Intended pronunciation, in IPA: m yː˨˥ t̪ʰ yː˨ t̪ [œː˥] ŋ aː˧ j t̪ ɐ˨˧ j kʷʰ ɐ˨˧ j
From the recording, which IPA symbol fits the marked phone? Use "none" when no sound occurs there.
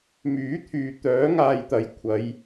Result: œː˨˥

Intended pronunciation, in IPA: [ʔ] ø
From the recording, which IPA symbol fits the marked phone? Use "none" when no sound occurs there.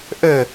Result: ʔ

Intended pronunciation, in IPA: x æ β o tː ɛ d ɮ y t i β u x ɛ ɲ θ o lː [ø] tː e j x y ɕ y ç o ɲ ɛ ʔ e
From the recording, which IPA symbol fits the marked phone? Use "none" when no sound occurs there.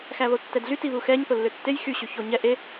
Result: ø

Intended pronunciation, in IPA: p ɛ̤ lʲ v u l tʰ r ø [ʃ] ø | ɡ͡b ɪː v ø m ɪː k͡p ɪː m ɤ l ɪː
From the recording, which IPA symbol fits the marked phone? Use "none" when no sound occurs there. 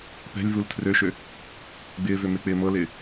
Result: ʃ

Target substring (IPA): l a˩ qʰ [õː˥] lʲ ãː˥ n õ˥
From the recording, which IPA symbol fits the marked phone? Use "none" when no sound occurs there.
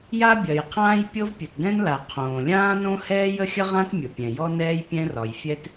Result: õː˩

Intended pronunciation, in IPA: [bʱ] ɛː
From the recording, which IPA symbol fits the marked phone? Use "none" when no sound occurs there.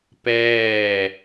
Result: p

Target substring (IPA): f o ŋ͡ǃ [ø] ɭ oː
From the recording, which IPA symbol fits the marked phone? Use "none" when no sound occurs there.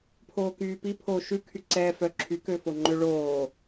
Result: ø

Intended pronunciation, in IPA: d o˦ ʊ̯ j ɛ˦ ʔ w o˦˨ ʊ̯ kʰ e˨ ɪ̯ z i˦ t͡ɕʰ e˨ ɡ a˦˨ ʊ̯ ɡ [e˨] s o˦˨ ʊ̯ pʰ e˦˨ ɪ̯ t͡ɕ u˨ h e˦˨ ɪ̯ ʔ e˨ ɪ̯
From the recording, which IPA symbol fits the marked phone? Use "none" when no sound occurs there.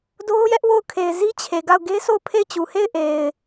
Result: e˦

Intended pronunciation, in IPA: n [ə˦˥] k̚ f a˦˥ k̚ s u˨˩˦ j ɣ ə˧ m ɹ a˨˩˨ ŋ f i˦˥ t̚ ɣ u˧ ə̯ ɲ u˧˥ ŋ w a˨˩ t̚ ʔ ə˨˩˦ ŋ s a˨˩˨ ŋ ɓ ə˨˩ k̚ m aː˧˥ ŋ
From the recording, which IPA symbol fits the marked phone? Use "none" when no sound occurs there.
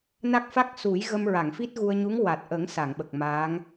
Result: a˦˥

